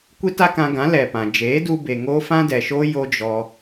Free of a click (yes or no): yes